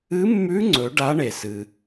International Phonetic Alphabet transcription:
ɨ˧˥ mː ʉ˧˥ ŋ͡ǀ ɵ˩˧ ɖ a˧˥ ɳ e˩ s ɨ˩

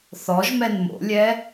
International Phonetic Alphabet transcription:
θ ɔ ʒ m ɛ n m o̰ lʲ ɛ

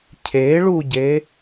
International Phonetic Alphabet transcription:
cʰ e ɭ u ɟ e

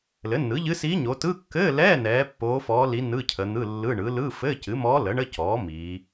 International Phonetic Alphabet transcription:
l ɘ˩˥ nː ɯ˩˥ ʎ ɨ˧˥ s iː˧˥ ɲ o˩˧ t ɯ˧˥˧ kː ɘː˧˥˧ l ɛː˧˥˧ n ɛː˩˧ pː oː˧˥ f ɔː˧˥ l i˧˥ n ɯ˧˥˧ cʰ ə˩˧ n̪ ɯ˧˥˧ lː ɯ˧˥˧ ɳ ɯ˩˥ l ɯ˧˥˧ f ɘː˧˥˧ c ɨ˩˥ m ɔː˧˥ l ə˩˥ ɳ ə˧˥˧ c ɔː˩˥ m iː˩˧

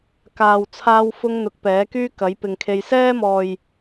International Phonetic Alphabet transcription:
k aː˨ w t͡sʰ aː˧ w f ʊ˧ ŋ n̪ ʊ˨˥ k̚ p ɛː˨˥ k yː˥ k ɐ˨˥ j p ɪ˨ ŋ kʰ e˧ j s ɛː˥ m ɔː˨ j

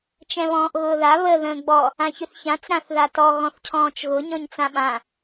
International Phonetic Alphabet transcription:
t͡ʃ ɛ̃ β ɔ̃ː ʔ ɣ ʊː ð a β ə ð ə̃ː ɡ͡b ɔ | ã ç ʏ θ ç ã t͡s ɾ ã θ ð a t ɔ ɣ ɔ̃ θ cʰ ɔ̃ː t͡ʃ ɣ ʊ ɲ ɔ̃ ɲ t͡s ã ɓ ã

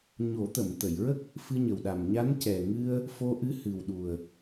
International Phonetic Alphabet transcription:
ɲ o˨˩˦ t̪ ə˨˩˨ m t̪ ə˨˩˨ j ɹ ə˦˥ k̚ | f ɨ˧ ɲ ə˨˩ w ɗ a˨˩ m ɲ a˧˥ n c ɛ˨˩ ŋ ɨ˧ ə̯ | f o˧ ʔ ɨ˧˥ h ɨ˨˩ w ɗ u˨˩ ə̯

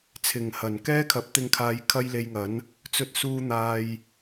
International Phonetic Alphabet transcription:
t͡sʰ ɪ˨˩ ŋ h ɐ˨˩ n k ɛː˥ kʰ ɐ˨˥ p̚ t̪ ɪ˧ ŋ kʰ aː˨˧ j kʰ ɐ˥ j l e˧ j ŋ ɐ˨˥ n | t͡s ɵ˧ t̚ s uː˧ n̪ aː˨ j

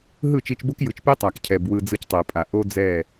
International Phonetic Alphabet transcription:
ɦ ɯ˦˨ t͡ʃ i˧ t͡ʃ b o˦ k j ɯ˨ t͡ʃ p i˦ tˤ a˨ k cʰ ɛ˨ b w ɯ˧ d͡z ɯ˧ c tˤ e˨ pʼ a˨ ʔ o˦ d͡z ɛ˦˨

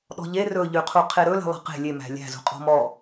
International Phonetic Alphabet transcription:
ɗ ɔ̤ ʎ e r ɵ ʎ ʉ qʰ u qʰ e ɾ ɵ l e̤ lˠ æ̤ q e̤ lʲ e m æ̤ lʲ æ̤ z ṳ qʼ ɔ̤ m ɔ

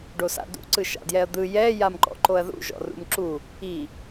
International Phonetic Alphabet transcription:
ɖ o s a̰ d ṵ ǀ ɯ ʃ a̰ d j ɛ ɐ̯ d̪ ɯ j ɛ j a m ǃ ɔ̰ ǃ o ɐ̯ ð ṵ ʒ ɔ̰ r ṵ m ǁ u | i

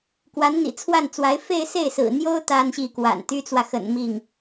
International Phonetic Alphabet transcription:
k w a˧˥ n n̪ ḭ˨˩ t͡sʰ w a˥˩ n t͡s w a˧˥ ɪ̯ f e˥˧ ɪ̯ s e˥˩ ɪ̯ s ɹ̩˨˩ n̪ j o˥ ʊ̯ t̪ a˥ n ɕ i˥˩ k w a̰˨˩ n t̪ y˥ t͡s w ä˨ x ə̰˨˩ n m i˥˩ ŋ

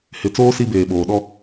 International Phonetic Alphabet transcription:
h ɪ˨˦ t͡s oː˦ s i˦ b eː˨ ɓ oː˨ ɗ ɔ˦˨

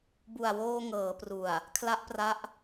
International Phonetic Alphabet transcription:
b u˨˩ a̯ w oː˧ ŋ ɤː˩˦ p r u˨˩ a̯ | kʰ l a˦˥ ʔ p r a˦˥ ʔ

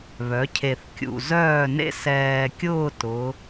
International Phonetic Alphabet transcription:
β œ˩˧ cʰ e˨˩ θ kʲ ṵ˨˩ z œː˥˩ n ḛ˦ s ɛː˨˩ kʲ ʊː˥˩ t ʊ˩˧

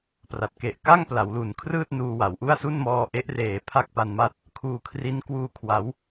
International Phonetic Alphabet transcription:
p r a˨˩ t̚ k e˨˩ ʔ k a˥˩ ŋ p l a˩˦ w l u˩˦ n kʰ r ɯː˥˩ t̚ n uː˧ w a˩˦ w ʔ u˥˩ a̯ s u˥˩ n m ɔː˧ ʔ e˦˥ ʔ r eː˨˩ pʰ a˥˩ k̚ p a˧ n m a˦˥ t̚ | kʰ uː˧ kʰ r i˦˥ n k w uː˧ kʰ w a˩˦ w

